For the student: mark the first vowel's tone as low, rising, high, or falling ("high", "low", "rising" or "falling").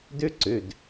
high